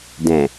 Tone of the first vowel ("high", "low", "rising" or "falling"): low